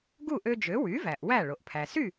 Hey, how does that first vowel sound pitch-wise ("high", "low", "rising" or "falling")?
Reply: falling